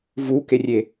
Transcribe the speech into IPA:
vukerʲe

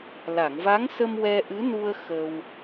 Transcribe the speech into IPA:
la˨˩˨ŋva˧˥ŋsə˧m wɛ˧ʔɨ˧˥nu˧ə̯ xə˧w

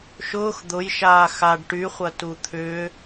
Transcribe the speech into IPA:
ʃʊːx d̪ʊjʃaː xaɖ ʈyχʷɐtu t̪ʰʏː

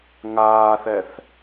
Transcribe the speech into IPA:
ŋaːθɛθ

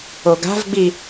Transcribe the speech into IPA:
oɡa̤vɡ͡bi

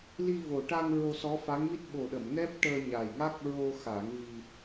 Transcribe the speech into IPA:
li˧vo˨˩ʈa˧ŋ ɹo˧sɔ˧˥fa˧˥ŋmi˦˥t̚ ɓo˨˩ ɗə˨˩˨m nɛ˦˥p̚ʈəː˧ɲa˨˩jŋa˦˥k̚ ɹo˧xa˨˩˦ŋ vi˧

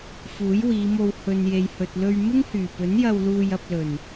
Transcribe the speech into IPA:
fuː˨˥jwiː˨˧mo˧w hɵ˨n je˨jhɵ˨t̚lɵ˧ɥ mɪ˥ŋhyː˨˩pɵ˨˥njɐ˧w luː˧jɐ˧p̚lɵ˨˩n

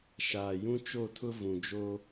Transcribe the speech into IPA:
ʃaː˨jũ˦t͡ʃo˦˨tʰʊ˦ vũ˨d͡ʒoː˦

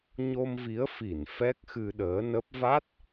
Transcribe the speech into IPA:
ɲo˧mvi˨˦ə̯ fi˧˩n fɛ˦˥k̚xɨ˧ɗəː˨˦nə˦˥p̚ va˦˥t̚

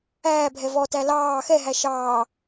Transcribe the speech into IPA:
æːbʱɛ vɔtæ lɑː xɛɦæ ʃɑː

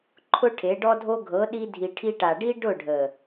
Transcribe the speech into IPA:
ǃʰʊ˦ʈʰe˨˦ɖɔ˦dʱo˦ ɡʱɤ˨˦ ɗi˧dʱi˨ʈʰi˧ʈa˨ ɖi˦ɖʊ˦˨ɖʱə˨

